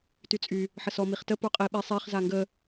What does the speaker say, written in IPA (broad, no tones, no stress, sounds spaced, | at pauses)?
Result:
t y t͡sʼ y | ħ ə s ɔ m i χ t ə p o qʼ i ɓ i sˤ e χ z a ŋ ɡ ə